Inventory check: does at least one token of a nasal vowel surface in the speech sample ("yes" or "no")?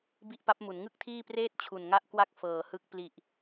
no